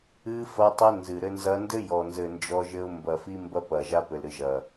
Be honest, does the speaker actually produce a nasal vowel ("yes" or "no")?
no